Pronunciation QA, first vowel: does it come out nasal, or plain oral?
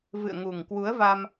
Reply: oral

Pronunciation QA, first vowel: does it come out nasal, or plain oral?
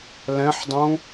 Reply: nasal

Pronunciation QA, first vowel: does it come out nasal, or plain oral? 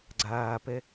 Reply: oral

